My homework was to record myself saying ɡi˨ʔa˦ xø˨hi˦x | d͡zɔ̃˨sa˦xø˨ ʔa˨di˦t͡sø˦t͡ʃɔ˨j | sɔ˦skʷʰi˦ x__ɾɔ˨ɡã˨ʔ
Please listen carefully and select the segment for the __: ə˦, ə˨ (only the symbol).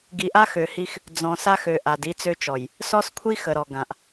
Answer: ə˨